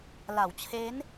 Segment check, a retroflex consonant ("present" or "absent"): absent